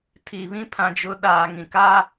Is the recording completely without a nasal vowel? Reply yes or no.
no